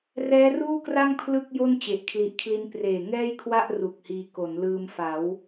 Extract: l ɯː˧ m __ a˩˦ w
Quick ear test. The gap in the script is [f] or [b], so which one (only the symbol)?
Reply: f